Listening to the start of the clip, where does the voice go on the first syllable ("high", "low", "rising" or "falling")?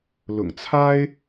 low